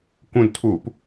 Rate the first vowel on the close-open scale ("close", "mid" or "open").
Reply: close